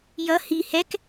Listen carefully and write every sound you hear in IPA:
jʌ hi hɛk

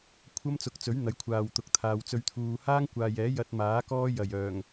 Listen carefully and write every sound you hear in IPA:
kʷʰɐ˥mt͡sʊ˨˥k̚t͡sɵ˨˥ɥ n̪ɐ˨˥jkʷʰaː˨wt̪ʊ˨˥k̚ t̪ʰaː˨wt͡sɵ˧ɥt̪ʰuː˨ haː˥ŋkʷaː˨jɛː˨˥ jɐ˧t̚maː˨˥ kɔː˥ jɐ˨˩j œː˨˩ŋ

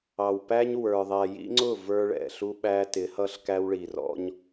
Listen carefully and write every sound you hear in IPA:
ɑ˨wpæ˦ɲ wə˞˨ ðˤæ˨jḭ˦ŋ͡ǀʊ˦˨ və˞˦ɭɛ̰˨ɬu˦ ɓæ˦tɪ˨˦hʌ˦ɬ kæ˦wɭi˨rɔ̰˦ɲ

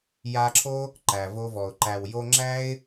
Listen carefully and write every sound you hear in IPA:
ja˧ǁʰo˦ | ǃæ˨vo˧vɔ˨ʊ̯ ǃæ˨w jo˧ŋ͡ǁæ˦ɪ̯

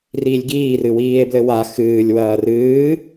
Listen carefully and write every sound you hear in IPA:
riːlʲɡiːrɨ wiːe̯blɘwa xɨːlʲwɐː rɨː

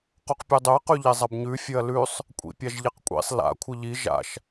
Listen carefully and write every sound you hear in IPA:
qoqpʲɵdˤɵɐ̯ qʉʎezˤɐbɲʉ fʲɵɐ̯lʉsˤ | kʷʼḭpʲaʒʎeqkʷʼḭsˤ la̰ kʷʰɨʎi ʒa̰ʃ

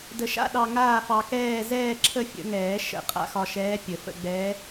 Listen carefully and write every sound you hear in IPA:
də˧ʃa̰˥˧ ɗɑ˧ŋaː˥˧fɑ˧kɛː˥˧ zɛː˥˧ǁʰə˥˧fʲə̰˨˩˦ŋɛː˨˩˦ ʃə̰˨˩˦ qʼa̰˧˥xɒ˧ʃɛː˧˥ pʲə˨˩˦fə̰˥˧ ɡ͡bɛː˧˥

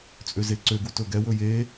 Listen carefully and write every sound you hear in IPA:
t͡sʼøzeǀøɡu tɵɡɛwɵ je

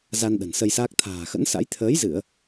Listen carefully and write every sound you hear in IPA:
za˧nɗə̤˨˩n sə˧jsaː˦˥k̚ t̪ʰa̤ː˨˩xə̰˧˥nsa̰˧˥j t̪ʰəː˨˦jzɨ˧˩˨ə̯

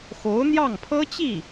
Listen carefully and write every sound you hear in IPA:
xo˧˥ʊ̯n̪jɑ˥˩ŋpʰɤ˥t͡ɕi˥˩

